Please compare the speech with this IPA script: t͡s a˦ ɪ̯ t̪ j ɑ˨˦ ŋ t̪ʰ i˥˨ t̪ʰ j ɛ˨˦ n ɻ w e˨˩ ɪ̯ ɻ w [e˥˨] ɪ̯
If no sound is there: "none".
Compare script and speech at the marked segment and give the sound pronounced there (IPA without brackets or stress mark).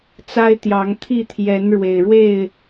e˥˨